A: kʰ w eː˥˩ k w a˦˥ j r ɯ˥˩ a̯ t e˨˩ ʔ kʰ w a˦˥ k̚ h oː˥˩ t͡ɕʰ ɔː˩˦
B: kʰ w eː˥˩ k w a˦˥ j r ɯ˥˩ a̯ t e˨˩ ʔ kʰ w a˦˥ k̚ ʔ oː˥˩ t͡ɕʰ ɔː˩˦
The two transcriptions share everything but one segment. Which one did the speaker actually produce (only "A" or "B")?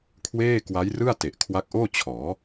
B